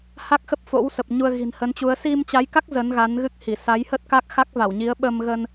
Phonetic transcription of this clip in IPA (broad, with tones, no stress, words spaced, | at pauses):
ha˦˥k̚xə˦˥p̚ fo̰˧˥wsə˨˩p̚ ɲu˧ə̯ɣi̤˨˩nhə˨˦nt͡ɕu˨˦ə̯ si˧mt͡ɕa˨˦jka˦˥k̚ zə˨˦nɣa˨˦nɣɨ˦˥k̚hi˧˩ sa˨˦jhə˦˥t̚ka˦˥k̚xa˦˥k̚ va˧˩wɲi˨˦ə̯ ɓə˧mɣə˧n